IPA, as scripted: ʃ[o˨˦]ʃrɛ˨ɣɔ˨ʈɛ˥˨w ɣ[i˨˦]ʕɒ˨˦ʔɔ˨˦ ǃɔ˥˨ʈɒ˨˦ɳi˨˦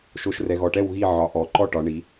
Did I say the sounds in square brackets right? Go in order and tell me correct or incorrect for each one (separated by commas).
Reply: correct, incorrect